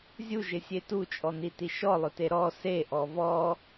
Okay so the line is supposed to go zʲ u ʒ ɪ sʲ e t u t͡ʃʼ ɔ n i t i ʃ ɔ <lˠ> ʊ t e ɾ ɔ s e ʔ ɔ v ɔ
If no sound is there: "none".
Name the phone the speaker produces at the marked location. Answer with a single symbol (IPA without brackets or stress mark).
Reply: lˠ